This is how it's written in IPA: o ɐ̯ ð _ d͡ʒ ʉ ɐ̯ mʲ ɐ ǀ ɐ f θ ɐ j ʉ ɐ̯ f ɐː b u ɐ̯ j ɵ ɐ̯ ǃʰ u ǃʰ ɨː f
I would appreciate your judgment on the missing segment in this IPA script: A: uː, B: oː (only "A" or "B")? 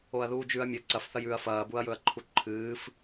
A